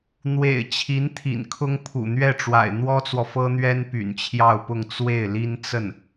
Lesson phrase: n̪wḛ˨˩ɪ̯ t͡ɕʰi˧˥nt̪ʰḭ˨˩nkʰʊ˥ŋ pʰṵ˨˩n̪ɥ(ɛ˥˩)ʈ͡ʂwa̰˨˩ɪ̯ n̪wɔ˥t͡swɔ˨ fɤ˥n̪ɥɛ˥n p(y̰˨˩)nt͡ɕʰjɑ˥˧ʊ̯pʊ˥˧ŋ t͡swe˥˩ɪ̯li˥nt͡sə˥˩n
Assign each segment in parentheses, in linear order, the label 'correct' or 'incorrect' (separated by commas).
correct, correct